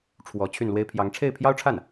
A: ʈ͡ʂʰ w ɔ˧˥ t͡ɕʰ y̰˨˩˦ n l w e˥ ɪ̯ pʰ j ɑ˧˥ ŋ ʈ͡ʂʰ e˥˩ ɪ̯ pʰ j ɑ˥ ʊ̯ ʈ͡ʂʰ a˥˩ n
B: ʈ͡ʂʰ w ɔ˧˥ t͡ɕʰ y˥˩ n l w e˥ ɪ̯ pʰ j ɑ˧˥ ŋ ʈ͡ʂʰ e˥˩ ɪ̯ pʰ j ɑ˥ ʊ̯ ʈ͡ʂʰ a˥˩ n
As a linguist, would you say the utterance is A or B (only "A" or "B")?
B